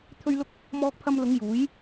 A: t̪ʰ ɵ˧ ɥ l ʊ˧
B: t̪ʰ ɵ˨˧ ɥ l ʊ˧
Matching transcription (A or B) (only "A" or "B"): A